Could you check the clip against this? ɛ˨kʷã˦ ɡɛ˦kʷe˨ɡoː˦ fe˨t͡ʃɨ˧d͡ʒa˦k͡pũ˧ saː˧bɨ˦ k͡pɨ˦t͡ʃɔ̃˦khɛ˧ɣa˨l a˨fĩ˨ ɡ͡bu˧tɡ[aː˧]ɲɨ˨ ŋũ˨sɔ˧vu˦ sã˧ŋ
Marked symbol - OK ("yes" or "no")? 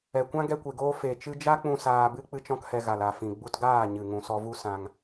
no